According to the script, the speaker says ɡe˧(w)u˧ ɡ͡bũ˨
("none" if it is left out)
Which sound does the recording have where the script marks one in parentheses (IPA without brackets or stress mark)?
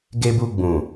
b